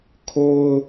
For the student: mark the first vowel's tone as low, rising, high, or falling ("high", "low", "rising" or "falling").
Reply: high